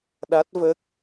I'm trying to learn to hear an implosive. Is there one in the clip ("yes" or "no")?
yes